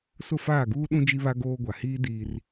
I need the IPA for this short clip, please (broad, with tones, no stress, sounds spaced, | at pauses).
s ʊ˦˨ f aː˦˨ ɡ uː˦ ɗ ũ˦ d͡ʒ i˦ β a˦ ɡ oː˦ ɡʷ a˨ h iː˦ d iː˦ r